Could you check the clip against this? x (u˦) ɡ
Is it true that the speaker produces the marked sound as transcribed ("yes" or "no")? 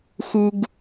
yes